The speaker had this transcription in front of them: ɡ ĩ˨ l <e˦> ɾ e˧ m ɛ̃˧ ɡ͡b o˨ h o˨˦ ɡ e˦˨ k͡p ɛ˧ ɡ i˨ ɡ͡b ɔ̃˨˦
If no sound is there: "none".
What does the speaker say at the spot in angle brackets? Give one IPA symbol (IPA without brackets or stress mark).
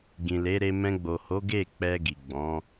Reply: e˨˦